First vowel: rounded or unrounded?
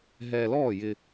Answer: unrounded